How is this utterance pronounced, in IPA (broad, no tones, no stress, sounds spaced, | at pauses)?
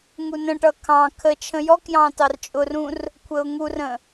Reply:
ŋ u n ə̃ ʈ ʌ kʰ ɑ̃ kʰ ə t͡ʃʰ ə̃ j ɔ k j ɑ̃ t ɑ r t͡ʃʼ ʊ r ũ r | kʷʰ ə ʊ̯ ŋ u r ə̃